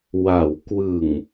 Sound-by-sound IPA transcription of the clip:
w a˩˦ w k w ɯ˨˩ ŋ

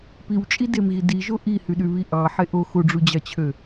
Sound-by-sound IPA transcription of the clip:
p i w t͡ʃʼ i d e m ɣ i d i ʒ o ʔ i h y ɗ y β i ʔ ɑ ħ e ʔ o x o ɖ͡ʐ u d͡ʑ ɑ t͡ɕʰ ø

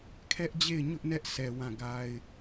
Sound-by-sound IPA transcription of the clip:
kʰ ɛ˦ ʔ d͡ʑ e˦˨ ɪ̯ ɲ ʊ˦ ʔ n ɛ˦ ʔ s ɛ˨ w ã˦˨ ɡ a˦ ɪ̯

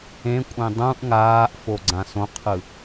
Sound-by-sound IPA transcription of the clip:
ẽ kʷʼ ẽ dˤ ũ ʔ ŋ aː ʔ f o ɡ͡ǀ ã s õ qʰ ɯ

